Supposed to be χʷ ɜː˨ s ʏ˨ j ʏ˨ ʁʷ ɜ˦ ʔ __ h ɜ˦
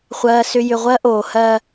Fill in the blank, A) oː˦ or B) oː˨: B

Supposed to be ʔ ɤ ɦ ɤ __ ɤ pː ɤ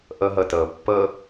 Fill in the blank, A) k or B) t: B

